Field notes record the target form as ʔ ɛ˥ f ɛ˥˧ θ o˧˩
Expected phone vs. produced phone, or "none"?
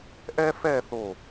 none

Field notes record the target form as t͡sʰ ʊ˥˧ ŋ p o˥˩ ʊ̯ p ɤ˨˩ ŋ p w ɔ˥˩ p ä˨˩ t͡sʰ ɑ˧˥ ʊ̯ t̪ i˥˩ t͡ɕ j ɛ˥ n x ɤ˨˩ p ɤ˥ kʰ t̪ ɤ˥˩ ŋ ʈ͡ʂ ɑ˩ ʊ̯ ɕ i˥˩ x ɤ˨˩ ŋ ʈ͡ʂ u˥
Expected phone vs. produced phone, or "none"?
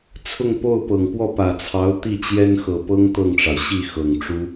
kʰ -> ŋ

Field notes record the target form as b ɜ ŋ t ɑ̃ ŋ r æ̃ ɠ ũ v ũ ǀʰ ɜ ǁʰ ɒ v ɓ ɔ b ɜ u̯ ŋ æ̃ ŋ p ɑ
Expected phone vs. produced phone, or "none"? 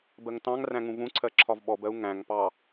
ɠ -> ŋ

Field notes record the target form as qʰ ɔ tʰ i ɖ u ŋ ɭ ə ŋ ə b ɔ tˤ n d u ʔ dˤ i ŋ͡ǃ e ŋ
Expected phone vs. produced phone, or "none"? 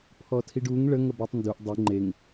qʰ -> pʰ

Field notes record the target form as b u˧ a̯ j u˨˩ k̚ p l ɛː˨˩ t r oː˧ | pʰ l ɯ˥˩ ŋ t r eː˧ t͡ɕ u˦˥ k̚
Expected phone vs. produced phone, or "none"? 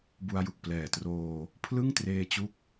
none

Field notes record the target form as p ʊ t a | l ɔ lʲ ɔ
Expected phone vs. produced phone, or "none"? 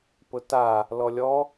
none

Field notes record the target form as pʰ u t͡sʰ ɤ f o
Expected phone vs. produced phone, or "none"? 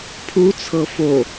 none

